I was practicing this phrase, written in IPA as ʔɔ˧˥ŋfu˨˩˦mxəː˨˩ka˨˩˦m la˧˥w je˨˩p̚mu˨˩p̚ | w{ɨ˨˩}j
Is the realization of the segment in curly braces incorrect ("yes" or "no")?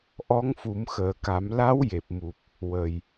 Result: yes